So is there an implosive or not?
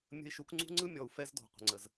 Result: no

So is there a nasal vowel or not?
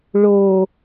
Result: no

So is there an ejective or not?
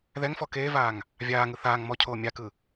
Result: no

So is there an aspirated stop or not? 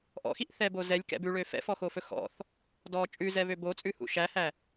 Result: no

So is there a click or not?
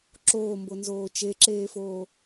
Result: yes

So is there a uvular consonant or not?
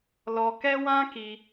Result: no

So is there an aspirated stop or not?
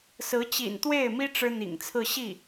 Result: yes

